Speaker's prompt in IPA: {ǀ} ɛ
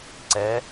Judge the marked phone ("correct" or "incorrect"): correct